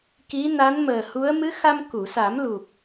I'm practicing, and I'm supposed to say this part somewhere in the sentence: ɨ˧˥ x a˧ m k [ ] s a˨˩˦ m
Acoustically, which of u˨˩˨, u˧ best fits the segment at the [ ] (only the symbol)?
u˨˩˨